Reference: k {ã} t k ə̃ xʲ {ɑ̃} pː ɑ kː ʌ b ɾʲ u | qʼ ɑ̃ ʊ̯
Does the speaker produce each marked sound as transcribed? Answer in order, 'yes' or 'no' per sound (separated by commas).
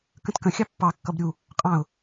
no, no